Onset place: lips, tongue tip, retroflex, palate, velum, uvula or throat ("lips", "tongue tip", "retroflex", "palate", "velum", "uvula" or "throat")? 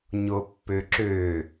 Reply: palate